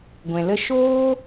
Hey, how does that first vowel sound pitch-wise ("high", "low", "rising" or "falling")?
low